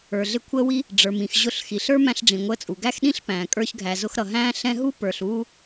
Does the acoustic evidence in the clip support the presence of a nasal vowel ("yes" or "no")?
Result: yes